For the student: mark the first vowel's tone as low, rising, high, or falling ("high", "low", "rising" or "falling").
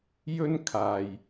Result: high